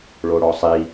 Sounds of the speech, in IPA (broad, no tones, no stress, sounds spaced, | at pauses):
ɭ o ɽ ɔ sˤ i